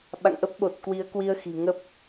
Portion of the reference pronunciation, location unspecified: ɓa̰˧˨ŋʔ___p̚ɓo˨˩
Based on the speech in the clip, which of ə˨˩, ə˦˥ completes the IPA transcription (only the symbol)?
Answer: ə˦˥